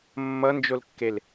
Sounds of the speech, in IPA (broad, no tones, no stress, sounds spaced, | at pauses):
mː ʌ n d͡ʒ o l kː e l